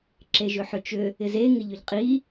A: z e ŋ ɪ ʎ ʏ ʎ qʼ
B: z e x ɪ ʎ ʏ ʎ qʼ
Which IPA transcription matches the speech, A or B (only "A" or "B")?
A